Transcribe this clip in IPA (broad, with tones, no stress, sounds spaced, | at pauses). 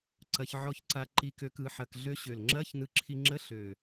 ǀ ɐ˧ ç ʕ ɔ˧ ç ǀ a˧ ǃ i˧ k ø˧ k ɯ˩˥ ħ ɐ˧ k ɮ ø˧ ɕ ø˨˩ l ŋ͡ǁ ɐ˧˥˧ ç n ɯ˧ ǁʰ i˧ ŋ͡ǁ ə˧˥˧ ɬ ø˨˩